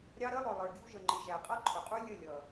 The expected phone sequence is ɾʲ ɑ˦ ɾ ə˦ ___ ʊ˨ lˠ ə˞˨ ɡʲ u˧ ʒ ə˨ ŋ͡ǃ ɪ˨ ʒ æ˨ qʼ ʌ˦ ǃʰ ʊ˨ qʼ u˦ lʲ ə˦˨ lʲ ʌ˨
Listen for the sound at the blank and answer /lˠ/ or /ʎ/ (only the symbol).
lˠ